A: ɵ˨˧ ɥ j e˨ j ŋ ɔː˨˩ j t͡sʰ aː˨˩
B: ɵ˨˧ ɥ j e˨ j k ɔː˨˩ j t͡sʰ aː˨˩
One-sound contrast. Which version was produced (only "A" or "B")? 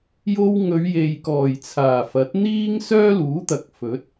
B